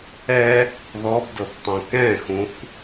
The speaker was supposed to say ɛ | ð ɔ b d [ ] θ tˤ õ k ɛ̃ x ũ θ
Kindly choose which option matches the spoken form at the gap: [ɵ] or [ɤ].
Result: ɤ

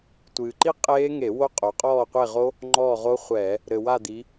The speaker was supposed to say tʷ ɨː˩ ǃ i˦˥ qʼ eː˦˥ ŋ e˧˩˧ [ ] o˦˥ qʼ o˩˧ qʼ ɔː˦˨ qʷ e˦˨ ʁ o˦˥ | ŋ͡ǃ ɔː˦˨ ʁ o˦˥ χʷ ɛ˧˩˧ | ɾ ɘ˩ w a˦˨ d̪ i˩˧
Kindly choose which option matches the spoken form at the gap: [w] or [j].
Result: w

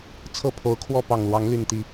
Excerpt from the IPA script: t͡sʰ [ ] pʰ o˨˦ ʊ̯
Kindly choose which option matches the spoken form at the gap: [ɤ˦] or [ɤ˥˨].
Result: ɤ˥˨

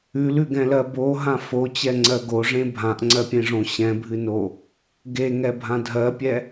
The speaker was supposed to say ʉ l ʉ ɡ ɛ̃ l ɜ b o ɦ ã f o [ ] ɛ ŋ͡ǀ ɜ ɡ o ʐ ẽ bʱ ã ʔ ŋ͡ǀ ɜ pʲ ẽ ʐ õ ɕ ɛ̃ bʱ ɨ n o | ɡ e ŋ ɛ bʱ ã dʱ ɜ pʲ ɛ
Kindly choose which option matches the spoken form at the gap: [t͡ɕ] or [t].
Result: t͡ɕ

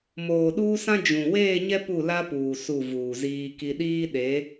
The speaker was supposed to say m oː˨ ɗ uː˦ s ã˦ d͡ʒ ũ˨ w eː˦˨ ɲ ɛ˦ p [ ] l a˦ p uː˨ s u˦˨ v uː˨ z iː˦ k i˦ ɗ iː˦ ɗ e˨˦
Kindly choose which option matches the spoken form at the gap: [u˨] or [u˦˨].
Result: u˦˨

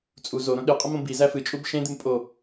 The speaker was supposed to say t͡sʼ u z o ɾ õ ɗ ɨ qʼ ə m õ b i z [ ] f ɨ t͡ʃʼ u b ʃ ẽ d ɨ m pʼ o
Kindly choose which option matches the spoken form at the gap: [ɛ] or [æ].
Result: æ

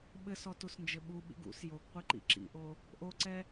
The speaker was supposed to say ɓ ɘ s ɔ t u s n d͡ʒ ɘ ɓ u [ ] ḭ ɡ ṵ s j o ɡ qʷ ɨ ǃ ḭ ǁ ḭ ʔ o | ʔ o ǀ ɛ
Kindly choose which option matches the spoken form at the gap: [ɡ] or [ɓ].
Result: ɓ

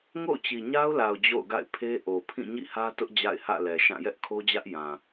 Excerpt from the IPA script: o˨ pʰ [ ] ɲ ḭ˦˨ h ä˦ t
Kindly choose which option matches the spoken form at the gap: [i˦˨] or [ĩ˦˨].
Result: ĩ˦˨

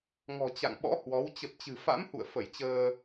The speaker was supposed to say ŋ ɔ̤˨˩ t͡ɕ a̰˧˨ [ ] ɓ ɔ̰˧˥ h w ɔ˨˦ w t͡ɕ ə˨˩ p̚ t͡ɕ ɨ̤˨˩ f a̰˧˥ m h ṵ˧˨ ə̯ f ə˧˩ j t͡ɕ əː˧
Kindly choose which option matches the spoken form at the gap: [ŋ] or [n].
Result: ŋ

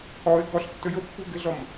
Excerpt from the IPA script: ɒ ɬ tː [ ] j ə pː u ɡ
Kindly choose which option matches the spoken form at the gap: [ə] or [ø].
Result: ə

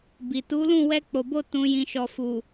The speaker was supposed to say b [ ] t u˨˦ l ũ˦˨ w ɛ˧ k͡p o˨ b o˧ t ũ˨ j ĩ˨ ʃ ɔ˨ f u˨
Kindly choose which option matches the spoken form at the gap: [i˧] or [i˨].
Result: i˨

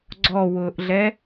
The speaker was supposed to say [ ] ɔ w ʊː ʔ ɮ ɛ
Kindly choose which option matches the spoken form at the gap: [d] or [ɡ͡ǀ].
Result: ɡ͡ǀ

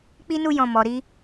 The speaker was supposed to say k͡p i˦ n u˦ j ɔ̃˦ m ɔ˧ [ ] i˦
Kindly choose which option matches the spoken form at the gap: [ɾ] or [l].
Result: ɾ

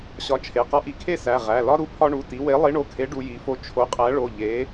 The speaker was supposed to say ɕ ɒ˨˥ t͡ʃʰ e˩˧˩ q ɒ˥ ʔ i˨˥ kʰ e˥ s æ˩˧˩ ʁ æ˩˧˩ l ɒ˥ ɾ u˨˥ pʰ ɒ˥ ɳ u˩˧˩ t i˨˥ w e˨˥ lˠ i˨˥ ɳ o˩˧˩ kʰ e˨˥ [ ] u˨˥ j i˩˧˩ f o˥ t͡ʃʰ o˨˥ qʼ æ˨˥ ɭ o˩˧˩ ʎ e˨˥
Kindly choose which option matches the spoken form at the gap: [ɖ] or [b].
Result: ɖ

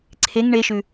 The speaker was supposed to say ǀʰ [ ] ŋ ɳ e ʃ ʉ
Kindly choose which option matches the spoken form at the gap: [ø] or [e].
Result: e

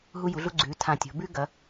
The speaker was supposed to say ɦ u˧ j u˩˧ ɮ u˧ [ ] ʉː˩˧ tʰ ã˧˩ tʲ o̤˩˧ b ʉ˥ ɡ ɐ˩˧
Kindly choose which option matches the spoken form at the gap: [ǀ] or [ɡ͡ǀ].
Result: ɡ͡ǀ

